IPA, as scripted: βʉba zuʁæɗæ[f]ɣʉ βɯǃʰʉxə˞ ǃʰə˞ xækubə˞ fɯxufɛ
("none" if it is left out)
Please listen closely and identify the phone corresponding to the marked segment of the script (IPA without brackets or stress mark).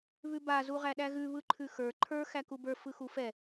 none